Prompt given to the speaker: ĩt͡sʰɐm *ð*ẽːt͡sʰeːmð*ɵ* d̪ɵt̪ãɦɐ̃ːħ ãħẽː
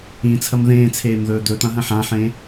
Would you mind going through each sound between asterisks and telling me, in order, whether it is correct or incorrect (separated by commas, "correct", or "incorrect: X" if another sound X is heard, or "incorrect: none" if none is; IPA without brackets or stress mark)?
correct, incorrect: ɵː